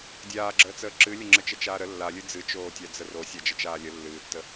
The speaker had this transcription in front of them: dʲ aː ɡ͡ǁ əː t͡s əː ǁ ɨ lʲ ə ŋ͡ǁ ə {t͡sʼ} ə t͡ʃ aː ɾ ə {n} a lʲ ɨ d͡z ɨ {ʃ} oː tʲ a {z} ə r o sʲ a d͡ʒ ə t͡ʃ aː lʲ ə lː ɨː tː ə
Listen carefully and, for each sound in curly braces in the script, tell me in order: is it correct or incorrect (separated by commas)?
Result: incorrect, incorrect, incorrect, incorrect